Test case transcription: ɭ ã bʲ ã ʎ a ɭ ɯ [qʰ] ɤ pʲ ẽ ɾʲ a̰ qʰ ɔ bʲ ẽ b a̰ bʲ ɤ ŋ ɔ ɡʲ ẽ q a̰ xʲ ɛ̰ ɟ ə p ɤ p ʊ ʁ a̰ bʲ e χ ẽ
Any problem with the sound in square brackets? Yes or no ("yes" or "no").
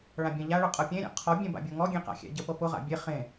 yes